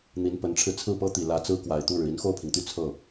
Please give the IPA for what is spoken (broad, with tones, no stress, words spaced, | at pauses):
n̪i˧˥npə˧˥nʈ͡ʂʰɻ̩˧ t͡sʰɹ̩˥˩pɤ˥t̪i˨˩ lä˧˥t͡sɹ̩˥ kwa˨˩ɪ̯t̪u˥˩ɻɻ̩˩ i˧˥nxo˥˩ʊ̯pʰi˩ŋt̪y˥˧ t͡sʰɤ˥˩